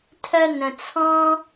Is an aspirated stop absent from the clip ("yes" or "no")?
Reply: no